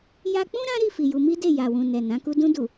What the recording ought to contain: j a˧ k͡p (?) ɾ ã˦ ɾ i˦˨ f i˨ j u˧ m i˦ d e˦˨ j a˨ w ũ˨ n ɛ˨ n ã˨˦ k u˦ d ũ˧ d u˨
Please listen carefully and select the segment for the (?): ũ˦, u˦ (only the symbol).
ũ˦